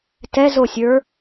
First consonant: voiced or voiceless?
voiceless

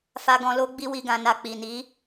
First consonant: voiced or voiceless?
voiceless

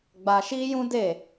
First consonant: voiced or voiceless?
voiced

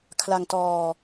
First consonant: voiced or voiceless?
voiceless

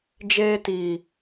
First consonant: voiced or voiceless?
voiced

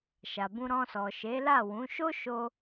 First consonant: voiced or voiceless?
voiceless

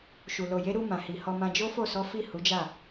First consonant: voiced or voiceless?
voiceless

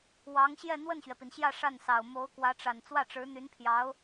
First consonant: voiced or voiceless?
voiced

